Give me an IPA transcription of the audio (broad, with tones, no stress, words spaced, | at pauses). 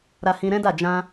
ɾa˧hĩ˧ɾɛ̃˦da˦˨ d͡ʒã˧